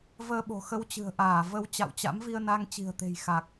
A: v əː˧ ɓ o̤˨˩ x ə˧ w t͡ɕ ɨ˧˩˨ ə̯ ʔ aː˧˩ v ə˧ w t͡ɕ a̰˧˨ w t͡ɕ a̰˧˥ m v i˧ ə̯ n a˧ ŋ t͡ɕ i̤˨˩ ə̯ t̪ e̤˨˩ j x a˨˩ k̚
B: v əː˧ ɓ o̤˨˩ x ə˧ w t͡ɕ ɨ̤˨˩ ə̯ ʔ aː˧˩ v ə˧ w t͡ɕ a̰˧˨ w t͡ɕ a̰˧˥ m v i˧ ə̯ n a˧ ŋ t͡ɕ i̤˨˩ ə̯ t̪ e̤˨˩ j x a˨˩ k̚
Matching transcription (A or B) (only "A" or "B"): B